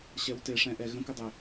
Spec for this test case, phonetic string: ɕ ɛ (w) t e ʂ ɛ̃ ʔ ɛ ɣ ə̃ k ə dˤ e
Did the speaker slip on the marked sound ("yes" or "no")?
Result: no